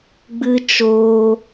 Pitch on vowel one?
high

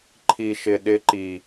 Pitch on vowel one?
low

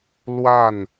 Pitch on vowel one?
falling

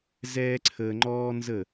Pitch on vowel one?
high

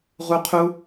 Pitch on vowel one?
high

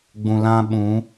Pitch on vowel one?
low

